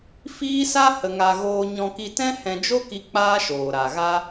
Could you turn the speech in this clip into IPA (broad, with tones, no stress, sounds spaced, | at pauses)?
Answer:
f iː˦ s a˦ h ə˧ ŋ a˧ ɣ oː˧ ɲ ɔ̃˧ k i˧ t ɛ̃˦ h ɛ̃˧ d͡ʒ o˦ k i˧ k͡p aː˦ ʃ oː˨ ɾ a˨ ɣ a˦